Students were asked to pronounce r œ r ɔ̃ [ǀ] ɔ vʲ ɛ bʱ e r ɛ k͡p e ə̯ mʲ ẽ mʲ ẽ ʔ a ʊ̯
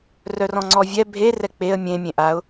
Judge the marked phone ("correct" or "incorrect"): incorrect